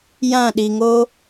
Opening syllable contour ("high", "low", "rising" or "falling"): falling